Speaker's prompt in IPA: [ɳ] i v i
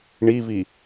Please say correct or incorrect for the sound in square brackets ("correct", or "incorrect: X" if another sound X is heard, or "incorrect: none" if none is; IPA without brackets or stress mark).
correct